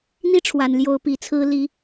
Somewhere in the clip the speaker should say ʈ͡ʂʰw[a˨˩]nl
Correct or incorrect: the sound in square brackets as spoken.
correct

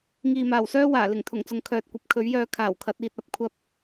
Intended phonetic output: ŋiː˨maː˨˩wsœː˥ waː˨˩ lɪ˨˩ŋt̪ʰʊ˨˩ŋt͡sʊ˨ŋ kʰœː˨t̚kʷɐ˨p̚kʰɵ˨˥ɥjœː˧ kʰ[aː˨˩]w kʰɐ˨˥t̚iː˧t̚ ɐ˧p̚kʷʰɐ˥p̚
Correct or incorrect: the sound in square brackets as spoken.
correct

